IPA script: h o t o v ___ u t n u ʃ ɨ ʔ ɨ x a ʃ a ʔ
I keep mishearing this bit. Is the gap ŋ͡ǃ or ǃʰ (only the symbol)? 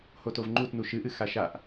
ŋ͡ǃ